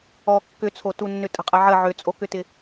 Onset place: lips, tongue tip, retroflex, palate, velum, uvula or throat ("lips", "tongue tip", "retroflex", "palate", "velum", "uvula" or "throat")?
velum